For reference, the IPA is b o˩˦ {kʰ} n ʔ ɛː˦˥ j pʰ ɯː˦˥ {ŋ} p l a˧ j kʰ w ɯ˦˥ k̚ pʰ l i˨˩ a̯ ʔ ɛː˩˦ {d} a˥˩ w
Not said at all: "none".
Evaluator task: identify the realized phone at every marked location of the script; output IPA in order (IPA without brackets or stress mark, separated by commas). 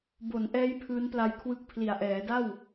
none, n, d